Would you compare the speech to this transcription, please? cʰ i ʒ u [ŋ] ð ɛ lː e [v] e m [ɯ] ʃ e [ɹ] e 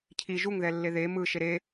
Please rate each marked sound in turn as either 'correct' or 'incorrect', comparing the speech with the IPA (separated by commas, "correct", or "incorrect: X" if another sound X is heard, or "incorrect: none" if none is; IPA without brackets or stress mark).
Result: correct, incorrect: ð, correct, incorrect: ɾ